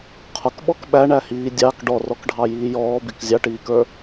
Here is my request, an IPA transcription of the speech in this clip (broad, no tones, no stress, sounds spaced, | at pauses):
qʰ ʊ k ɓ ɔ k ɓ æ ɳ æ h iː dʲ ɑ k ɖ ɔ r ɔ k ɖʱ ɑ j iː j ɔː b i k zʲ ɑ ʈ iː k ə˞